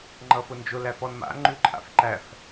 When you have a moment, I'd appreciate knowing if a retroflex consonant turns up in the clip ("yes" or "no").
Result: no